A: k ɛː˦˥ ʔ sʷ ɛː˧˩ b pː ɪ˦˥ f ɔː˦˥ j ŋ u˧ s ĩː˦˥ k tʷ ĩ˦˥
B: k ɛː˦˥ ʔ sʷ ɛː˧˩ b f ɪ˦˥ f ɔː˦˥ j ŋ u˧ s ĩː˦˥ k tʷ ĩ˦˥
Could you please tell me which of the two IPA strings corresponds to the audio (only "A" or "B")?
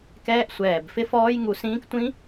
B